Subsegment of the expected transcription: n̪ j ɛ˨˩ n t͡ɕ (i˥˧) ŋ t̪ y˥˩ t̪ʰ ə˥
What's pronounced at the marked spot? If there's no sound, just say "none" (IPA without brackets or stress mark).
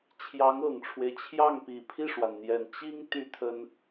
i˥